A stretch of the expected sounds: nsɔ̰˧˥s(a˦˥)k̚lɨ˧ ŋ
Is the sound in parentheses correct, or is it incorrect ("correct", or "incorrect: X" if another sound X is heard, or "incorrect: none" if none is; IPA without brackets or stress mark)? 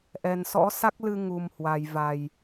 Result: correct